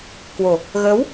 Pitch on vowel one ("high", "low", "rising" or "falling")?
low